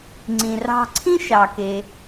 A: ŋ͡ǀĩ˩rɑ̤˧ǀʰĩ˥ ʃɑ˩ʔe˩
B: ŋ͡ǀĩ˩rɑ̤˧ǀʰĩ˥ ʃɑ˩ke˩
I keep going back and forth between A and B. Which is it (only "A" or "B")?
B